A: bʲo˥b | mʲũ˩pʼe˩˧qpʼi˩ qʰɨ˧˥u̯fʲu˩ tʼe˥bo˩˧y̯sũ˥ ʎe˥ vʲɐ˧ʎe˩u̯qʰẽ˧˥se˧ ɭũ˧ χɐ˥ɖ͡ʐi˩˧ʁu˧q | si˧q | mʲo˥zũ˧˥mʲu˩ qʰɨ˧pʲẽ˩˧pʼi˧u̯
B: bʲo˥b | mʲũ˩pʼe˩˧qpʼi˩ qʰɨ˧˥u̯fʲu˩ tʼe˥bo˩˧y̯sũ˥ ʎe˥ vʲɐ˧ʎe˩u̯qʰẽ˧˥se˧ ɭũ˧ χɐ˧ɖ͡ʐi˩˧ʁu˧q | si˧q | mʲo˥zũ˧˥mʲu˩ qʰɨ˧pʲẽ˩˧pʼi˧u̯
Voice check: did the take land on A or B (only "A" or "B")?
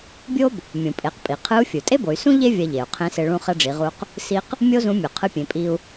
B